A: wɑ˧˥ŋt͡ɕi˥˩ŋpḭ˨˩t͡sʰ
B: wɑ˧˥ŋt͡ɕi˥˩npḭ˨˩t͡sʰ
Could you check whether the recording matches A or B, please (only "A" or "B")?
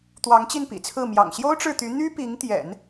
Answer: B